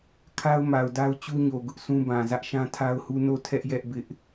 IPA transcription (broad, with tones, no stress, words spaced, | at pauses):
kʰa˦ʊ̯ma˨ʊ̯da˦ʊ̯ t͡ɕu˦ɲo˨ ɡʊ˦ʔsũ˦bã˨ zä˦ʔʃã˦tʰa˦ʊ̯hu˦ no˦˨tʰɛ˦ʔ jɛ˦ʔ bɪ˦ʔ